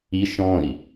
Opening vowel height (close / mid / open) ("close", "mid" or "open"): close